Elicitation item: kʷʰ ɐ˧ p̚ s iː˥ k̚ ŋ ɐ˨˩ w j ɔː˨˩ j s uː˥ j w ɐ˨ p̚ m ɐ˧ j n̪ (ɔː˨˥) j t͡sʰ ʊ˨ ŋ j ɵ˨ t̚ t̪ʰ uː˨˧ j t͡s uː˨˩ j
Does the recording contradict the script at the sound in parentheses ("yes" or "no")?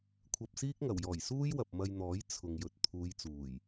no